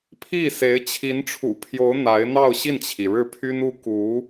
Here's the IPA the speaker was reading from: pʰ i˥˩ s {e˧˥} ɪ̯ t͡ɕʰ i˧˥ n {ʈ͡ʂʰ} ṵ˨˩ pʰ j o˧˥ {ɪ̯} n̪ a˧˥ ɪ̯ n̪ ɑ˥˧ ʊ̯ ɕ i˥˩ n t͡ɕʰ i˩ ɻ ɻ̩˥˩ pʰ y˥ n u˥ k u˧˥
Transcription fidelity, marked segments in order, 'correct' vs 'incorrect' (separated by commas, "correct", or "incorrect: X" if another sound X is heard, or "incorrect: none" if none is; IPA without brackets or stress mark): correct, correct, incorrect: ʊ̯